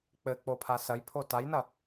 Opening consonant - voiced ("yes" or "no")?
no